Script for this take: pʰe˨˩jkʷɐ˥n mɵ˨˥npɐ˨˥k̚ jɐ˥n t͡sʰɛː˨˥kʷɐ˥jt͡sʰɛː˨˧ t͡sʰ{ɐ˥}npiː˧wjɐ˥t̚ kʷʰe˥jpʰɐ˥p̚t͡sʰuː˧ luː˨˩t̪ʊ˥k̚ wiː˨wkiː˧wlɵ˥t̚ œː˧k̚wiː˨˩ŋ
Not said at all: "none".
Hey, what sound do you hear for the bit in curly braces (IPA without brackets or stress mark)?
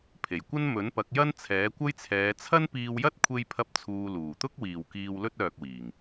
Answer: ɐ˥